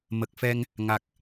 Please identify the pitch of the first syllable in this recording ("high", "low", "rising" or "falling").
low